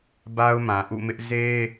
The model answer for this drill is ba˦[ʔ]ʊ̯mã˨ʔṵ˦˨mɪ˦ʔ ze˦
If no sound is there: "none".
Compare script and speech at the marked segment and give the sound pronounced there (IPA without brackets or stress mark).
none